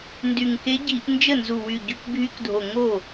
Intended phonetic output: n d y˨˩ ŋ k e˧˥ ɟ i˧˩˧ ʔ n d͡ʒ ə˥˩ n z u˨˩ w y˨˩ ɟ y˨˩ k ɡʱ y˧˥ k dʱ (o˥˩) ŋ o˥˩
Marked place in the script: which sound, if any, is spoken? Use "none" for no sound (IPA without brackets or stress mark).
o˨˩